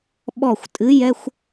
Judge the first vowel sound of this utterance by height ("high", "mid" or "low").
mid